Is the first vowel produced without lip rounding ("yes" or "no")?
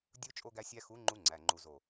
no